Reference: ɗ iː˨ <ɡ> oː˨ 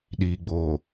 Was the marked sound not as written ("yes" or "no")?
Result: yes